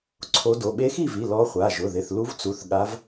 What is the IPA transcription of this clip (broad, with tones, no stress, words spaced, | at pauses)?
ǀʰo˧˥do˩˧˩ ɓe˧˥xi˥˨vi˩˧˩ lɔ˧˥χʷa˩˧˩ʒʊ˩˧˩ ðɪ˩˧˩θlu˧˥vt͡su˩˧˩θ ɠa˧˥v